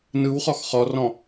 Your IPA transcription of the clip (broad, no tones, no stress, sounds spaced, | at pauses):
n ɯ w χ ɔ x χ ɔ r ɔ̃